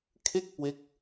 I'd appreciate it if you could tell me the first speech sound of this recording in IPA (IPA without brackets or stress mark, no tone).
kʰ